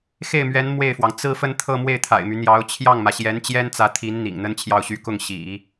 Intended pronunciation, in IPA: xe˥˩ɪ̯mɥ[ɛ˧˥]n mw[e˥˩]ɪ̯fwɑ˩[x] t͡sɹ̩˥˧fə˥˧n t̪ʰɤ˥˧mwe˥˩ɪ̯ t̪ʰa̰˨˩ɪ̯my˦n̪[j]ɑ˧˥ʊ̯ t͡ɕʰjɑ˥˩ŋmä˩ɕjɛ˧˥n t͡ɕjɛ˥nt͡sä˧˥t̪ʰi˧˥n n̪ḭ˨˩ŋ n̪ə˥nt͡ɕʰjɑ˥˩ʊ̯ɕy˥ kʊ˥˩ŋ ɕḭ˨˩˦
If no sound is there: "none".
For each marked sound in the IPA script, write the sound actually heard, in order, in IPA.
ɛ˧˥, e˥˩, ŋ, j

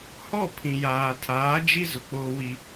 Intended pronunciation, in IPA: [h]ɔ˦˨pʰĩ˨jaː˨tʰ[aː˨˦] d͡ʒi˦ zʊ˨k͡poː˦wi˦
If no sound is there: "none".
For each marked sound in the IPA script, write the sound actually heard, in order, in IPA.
h, aː˨˦

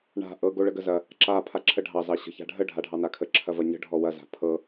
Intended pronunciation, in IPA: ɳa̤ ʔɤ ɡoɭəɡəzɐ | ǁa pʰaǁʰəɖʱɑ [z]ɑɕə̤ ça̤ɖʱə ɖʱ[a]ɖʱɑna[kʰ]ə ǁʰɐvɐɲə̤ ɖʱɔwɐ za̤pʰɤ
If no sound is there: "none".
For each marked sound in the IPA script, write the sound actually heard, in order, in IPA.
z, a, kʰ

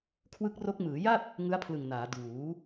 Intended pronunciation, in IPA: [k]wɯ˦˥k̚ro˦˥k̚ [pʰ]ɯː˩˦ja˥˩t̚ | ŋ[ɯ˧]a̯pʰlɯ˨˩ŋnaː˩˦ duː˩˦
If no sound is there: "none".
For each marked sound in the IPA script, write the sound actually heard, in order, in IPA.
kʰ, m, ɯ˦˥

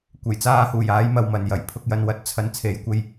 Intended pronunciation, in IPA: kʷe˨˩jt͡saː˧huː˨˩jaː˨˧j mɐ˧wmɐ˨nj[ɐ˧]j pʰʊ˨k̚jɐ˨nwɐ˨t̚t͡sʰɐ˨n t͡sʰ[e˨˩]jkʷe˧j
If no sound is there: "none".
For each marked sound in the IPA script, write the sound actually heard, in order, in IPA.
ɐ˨˩, e˨˧

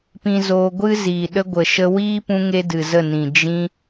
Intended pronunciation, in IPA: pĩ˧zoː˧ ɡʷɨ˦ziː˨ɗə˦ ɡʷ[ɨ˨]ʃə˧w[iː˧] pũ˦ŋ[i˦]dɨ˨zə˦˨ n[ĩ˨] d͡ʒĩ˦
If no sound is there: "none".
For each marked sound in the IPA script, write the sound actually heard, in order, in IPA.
ə˨, iː˦, e˦, ĩ˨

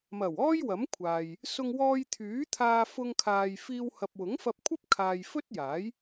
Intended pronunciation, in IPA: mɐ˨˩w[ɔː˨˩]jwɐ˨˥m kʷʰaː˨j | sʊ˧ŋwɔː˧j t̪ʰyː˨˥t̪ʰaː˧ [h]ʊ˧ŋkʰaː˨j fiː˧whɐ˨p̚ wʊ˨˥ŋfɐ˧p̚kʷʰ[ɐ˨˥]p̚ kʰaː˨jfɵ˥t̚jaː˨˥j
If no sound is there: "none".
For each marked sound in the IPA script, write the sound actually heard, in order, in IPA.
ɔː˥, f, ɐ˥

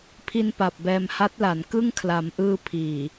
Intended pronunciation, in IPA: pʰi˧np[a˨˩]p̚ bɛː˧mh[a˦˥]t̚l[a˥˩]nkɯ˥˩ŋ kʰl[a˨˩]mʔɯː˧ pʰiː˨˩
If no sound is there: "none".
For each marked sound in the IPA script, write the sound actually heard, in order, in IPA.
a˨˩, a˦˥, a˩˦, a˩˦

